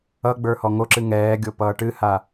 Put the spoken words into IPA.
ʌ ɡ͡b ə˞ h ɔ ŋ o ǁ ɨ ŋ ɛː ɡʲ o p ʌː ʈ ɨ h a

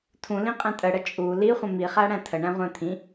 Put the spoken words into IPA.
tʰ ũ l ĩ qʼ ɛ̃ tʼ ə ɽ ə t͡ʃʼ u l i χʷ ə̃ m i χ æ ɽ æ̃ tʰ ə ɳ æ̃ ʁʷ ɛ̃ t̪ʰ ĩ

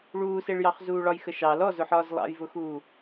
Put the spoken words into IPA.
ɭ uː s e ɭ j ɑ χ z uː ɭ ɒ j x ə ʃ ɑ l ɔ z ʊ ħ ɒː z lˠ ɑ̰ j v ʊ x uː

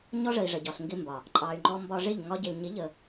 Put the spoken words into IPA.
ɲ ɔ˦ ʐ ə˨ i̯ ʐ ə˨ ɟ ɒ˨ s ŋ ɡ ɪ˦ m b ɒ˨ | ǃʼ ɑ˨ y̯ ŋ͡ǃ ɔ˧ m b ɒ˧ ʐ ɪ˦˨ ʎ ŋ ɒ˧ ɟ ɪ˨ l ɲ ɪ˨˦ ʎ ə˨

